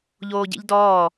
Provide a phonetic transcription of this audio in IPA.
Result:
ʎ oː ɟ ḛ ʎ d ɔː

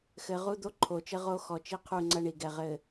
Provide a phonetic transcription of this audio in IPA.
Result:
x ɘ˨ ʁ u˦ d̪ o˦ ǃʰ o˨ t͡ʃ ɘ˦ ʁ o˦ x ɔ˨ t͡ʃ i˦ qʰ u˦˨ ŋ͡ǀ ɐ˦ ɳ i˨ ɡ ɛ˨ ʁ ɘ˨

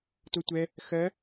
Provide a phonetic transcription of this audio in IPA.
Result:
t o tʷ ɛ | x ɜ

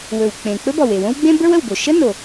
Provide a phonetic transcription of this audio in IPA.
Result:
w ɵ˩ w k͡p ẽ˩ k͡p ɵ˥ b ɔ˩ w e˩ w õ˥ w ɡ͡b ẽ˥ b ə˞˥ w ə˩ w b o˩ ʃ ə˥ n o˩

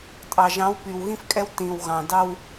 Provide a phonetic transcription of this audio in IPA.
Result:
tʼ ɑ˨ ʒ ɑ̃˨˦ w p y˨ w ɣ ĩ˦ f kʼ ɛ˦ w t ĩ˨ w ɣ ɑ̃˨ d ɑ˦ w

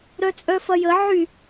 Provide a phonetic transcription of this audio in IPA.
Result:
ɾ œ t͡sʼ œ f ɐ j ə ʕ y

